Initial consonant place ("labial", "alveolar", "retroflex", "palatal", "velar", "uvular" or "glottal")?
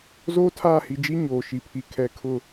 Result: alveolar